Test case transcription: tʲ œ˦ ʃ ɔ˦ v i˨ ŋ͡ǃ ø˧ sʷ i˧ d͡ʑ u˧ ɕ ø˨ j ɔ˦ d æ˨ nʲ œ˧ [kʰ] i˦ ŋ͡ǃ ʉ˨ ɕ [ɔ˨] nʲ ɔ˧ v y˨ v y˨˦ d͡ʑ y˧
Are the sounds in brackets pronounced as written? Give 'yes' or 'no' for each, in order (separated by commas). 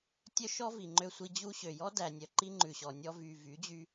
no, yes